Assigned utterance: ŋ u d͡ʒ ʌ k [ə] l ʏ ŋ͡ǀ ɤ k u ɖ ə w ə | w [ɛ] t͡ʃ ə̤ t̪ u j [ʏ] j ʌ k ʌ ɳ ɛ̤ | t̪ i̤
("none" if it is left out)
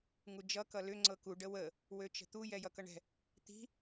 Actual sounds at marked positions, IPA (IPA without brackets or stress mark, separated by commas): ʌ, ø, ɛ